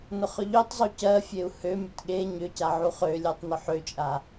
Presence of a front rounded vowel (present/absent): present